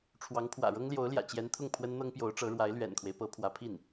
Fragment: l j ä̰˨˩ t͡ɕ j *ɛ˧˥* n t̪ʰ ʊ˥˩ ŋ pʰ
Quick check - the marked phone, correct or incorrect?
correct